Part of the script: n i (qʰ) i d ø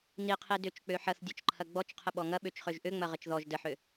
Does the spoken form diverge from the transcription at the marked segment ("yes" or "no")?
no